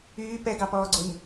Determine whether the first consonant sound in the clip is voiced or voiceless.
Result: voiceless